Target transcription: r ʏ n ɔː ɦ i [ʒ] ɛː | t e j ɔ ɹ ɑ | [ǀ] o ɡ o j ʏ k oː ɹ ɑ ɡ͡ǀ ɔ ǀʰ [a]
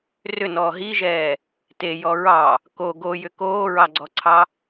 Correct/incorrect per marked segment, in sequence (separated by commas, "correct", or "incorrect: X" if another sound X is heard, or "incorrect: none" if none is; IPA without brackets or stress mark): correct, incorrect: k, incorrect: ɑ